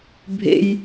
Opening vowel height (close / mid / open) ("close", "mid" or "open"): mid